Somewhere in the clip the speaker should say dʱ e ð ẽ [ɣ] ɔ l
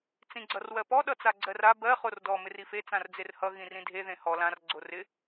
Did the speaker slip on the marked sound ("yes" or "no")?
yes